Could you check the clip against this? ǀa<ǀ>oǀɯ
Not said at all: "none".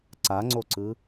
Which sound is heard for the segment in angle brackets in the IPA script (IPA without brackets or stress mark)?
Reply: ŋ͡ǀ